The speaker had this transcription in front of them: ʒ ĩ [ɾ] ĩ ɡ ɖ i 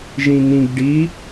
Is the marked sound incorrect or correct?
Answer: incorrect